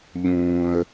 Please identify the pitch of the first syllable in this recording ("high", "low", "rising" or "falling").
high